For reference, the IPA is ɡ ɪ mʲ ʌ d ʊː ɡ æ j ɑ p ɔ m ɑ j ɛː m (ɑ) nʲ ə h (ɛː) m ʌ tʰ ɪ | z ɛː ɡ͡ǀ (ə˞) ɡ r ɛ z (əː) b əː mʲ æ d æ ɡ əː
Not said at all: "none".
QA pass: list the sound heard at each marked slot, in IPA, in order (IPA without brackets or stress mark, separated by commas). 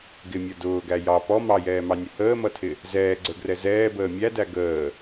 ɑ, əː, ə˞, ɛː